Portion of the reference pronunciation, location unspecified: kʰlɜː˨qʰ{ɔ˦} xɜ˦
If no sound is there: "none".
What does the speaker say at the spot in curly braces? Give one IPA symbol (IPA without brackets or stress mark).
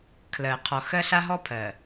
ɔ˨